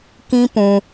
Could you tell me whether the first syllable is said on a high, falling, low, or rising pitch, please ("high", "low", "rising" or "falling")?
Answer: high